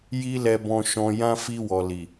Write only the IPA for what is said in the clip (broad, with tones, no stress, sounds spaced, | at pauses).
j i˦ l ɛ˧ b ɔ̃˧ ʃ ɔ̃˧ j ã˦ f i˧ w ɔ˨ l i˨